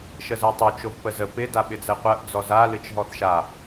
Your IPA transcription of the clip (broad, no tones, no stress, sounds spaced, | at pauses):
ʃ ə z ɜ tˤ o t͡ʃ o v p ə z ə p ɪ d a ɓ ɪ d͡z ɛ qʷ ɜ ʔ d͡z ɔ z a l ɨ t͡ʃ ɦ ɔ θ ʃ a